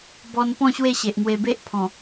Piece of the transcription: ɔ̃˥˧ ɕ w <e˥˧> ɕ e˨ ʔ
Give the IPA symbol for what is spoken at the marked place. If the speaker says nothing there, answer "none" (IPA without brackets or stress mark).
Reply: e˥˧